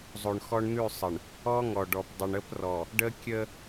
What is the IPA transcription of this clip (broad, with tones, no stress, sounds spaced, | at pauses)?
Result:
zˤ o˨ ɳ x ɔ˦ ɳ n̪ ʉ˦˨ sˤ ə˨ ɳ | ɔ˦ ŋ ɔ˨ ɖ ɔ˨ p dˤ ə˨ ɳ ə˦ p r ɔ˨ | ɖ ə˦ kʲ ə˦